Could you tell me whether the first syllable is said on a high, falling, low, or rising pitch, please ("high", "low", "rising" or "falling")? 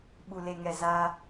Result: low